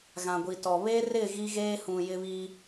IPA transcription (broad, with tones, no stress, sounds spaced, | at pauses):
ɣ ã˨ ɡʷ i˨ t ɔ˨ β e˦ r ɪ˦˨ ɣ i˦ ɣ eː˦ h ũ˨ j ɪ˦ β iː˦